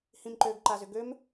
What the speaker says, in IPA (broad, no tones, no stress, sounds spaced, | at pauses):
h ĩ m ǃ ø ɡ ǃ a z ʏ ɡ ø m